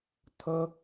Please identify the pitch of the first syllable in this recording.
high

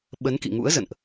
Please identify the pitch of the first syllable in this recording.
rising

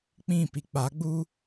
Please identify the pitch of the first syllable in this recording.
falling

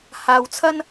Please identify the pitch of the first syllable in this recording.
low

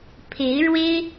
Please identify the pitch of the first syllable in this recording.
rising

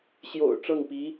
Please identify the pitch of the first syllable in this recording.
low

